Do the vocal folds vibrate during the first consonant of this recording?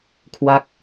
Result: no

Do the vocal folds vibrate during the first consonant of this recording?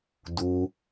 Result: yes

